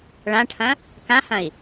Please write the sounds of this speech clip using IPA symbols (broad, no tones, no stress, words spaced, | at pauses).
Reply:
ɭãʈʰɐ̃ | kãhɐ̃i̯